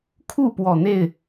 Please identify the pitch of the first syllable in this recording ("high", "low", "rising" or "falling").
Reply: falling